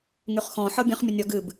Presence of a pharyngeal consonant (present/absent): present